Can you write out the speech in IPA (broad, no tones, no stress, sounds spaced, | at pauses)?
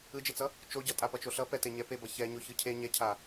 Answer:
ɯ d͡ʒ e t͡s ʌ | t͡ʃ o ɟ ʌ tʼ a p ʌ t͡ʃ o ɬ ʌ p ɛ t e ɲ ɛ p e b ʌ ç ɛ ɲ o ç ɯ cʰ e ɲ ɛ cʰ a